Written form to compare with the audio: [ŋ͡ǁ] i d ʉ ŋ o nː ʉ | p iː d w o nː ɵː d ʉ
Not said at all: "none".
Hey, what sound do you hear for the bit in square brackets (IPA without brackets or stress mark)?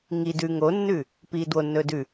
ŋ